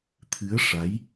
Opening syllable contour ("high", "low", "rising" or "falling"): rising